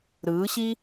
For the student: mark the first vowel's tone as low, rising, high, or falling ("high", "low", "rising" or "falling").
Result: rising